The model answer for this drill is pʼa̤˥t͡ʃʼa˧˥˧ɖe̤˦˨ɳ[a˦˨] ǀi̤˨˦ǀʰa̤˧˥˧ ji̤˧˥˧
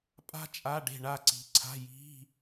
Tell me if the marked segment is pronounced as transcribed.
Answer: yes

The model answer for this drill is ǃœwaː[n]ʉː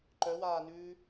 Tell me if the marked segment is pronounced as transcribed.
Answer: yes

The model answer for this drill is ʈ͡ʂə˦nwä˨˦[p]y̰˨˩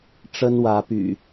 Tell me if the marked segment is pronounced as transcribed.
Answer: yes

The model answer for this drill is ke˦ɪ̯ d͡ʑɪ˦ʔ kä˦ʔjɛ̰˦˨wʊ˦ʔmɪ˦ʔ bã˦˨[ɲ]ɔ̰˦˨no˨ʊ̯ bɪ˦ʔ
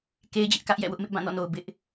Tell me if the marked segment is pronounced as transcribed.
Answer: no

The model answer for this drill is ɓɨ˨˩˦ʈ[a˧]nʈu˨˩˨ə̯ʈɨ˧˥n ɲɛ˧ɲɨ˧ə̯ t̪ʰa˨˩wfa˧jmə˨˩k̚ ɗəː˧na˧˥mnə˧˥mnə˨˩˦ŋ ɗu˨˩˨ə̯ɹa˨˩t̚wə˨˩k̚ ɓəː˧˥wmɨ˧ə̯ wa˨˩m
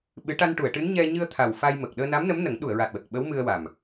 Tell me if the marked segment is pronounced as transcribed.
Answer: yes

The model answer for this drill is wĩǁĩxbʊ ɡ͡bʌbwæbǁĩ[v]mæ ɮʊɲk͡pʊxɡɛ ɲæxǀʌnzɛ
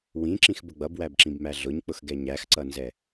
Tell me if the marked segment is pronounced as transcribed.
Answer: no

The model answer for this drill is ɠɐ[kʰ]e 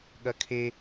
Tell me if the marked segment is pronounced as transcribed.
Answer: yes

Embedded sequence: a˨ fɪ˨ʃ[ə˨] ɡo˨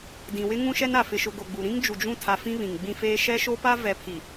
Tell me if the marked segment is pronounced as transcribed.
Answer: no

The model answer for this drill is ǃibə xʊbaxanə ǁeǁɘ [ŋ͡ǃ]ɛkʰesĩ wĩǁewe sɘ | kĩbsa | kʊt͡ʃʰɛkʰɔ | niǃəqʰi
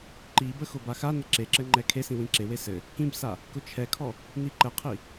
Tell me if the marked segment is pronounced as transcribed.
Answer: yes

